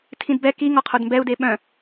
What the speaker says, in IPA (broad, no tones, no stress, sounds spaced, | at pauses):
tʰ ĩ d b ɛ k i ŋ ɔ qʰ o d m b ɛ u̯ d e ɓ œ̃